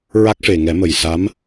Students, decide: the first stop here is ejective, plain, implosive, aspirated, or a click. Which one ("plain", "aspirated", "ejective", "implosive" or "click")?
plain